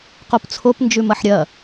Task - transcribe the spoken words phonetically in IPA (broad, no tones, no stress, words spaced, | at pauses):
qopt͡sʰop nd͡ʒʉmɐħɾʲɐ